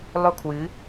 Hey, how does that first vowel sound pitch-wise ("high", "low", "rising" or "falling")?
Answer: high